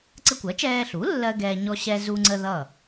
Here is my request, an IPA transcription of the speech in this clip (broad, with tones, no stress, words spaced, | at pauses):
ǀə˧kʷɜ˩˥t͡ʃɛː˧ɬu˩˥ lːɜ˥ ɡɛː˧ ɲɔ˥ ɕɛ˥zu˥ŋ͡ǀə˥ðʌ˥˩